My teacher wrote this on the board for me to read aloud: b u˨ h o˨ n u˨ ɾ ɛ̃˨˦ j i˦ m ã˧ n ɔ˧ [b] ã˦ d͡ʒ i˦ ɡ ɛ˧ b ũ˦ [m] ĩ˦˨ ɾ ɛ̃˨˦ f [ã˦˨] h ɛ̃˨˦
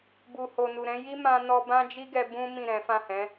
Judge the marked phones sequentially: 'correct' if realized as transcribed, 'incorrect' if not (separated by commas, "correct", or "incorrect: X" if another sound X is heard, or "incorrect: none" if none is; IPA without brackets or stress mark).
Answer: correct, correct, correct